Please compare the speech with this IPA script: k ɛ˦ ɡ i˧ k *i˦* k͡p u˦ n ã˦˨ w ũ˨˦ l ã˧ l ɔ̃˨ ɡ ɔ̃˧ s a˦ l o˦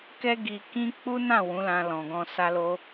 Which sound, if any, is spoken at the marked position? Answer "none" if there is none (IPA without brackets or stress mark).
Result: ĩ˦